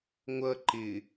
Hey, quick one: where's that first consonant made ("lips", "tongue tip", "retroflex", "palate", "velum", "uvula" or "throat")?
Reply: velum